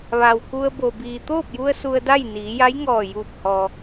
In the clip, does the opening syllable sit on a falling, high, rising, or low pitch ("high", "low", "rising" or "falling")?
low